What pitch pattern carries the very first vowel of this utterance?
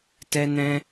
high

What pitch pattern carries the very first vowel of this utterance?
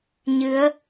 rising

